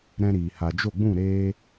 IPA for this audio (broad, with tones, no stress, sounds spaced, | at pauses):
ɾ ɛ̃˦ ɾ iː˨ h a˨ d͡ʒ o˦˨ ɡ͡b ũ˦˨ ɾ eː˧